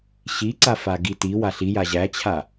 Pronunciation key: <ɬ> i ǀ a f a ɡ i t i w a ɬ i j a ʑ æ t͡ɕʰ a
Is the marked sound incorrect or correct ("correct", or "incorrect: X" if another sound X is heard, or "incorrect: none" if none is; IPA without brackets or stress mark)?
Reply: incorrect: ɕ